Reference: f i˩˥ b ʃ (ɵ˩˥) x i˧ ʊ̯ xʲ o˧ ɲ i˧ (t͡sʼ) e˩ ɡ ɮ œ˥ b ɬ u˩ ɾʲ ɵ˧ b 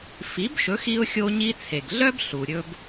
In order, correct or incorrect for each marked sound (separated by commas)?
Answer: correct, incorrect